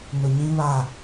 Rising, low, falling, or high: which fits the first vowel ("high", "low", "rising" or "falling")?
low